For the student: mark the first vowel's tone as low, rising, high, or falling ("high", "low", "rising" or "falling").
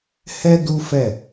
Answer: high